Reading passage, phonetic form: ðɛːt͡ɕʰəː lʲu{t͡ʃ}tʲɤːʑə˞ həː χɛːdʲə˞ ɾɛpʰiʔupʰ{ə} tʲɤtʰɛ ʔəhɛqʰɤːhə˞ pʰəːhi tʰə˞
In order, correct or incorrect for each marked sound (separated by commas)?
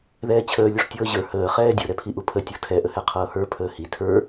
incorrect, correct